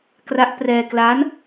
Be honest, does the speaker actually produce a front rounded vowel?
no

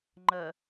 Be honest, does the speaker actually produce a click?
yes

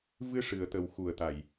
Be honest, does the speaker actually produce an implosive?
no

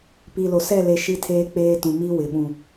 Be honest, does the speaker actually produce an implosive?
yes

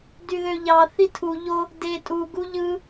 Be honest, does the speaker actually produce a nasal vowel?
no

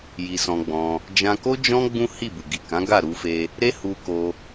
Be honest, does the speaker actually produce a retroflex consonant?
no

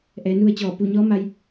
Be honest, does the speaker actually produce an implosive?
no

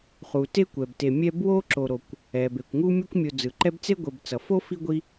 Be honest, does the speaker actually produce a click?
yes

